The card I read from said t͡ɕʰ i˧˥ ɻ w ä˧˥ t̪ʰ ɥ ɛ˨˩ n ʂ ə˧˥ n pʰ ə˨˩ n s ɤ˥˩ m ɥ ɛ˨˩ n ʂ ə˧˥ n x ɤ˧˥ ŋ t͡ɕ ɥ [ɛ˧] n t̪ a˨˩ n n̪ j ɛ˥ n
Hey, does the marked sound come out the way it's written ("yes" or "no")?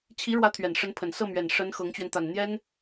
yes